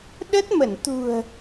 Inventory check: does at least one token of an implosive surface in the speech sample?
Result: yes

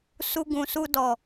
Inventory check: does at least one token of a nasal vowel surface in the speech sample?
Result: yes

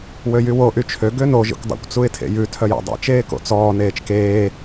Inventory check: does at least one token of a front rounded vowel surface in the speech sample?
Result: yes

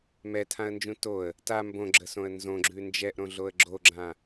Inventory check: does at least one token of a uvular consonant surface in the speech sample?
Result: no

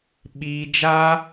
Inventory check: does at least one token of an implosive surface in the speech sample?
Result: yes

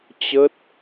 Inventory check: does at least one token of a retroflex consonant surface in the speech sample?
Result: no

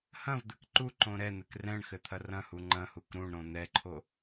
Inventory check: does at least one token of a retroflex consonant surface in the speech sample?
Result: yes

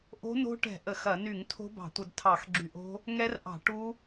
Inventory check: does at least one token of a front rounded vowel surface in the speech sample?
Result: yes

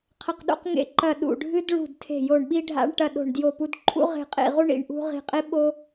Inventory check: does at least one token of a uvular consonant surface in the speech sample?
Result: yes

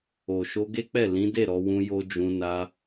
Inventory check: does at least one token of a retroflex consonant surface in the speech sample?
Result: no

